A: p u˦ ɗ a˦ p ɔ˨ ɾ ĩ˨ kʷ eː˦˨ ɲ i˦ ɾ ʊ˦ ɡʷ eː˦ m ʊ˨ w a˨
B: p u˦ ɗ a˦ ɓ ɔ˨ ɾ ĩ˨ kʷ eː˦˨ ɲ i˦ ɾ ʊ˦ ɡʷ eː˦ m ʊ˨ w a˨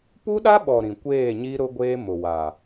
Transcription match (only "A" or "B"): B